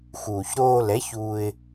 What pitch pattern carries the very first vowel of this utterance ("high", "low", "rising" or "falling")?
low